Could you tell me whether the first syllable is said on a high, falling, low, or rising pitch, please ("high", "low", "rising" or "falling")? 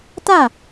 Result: falling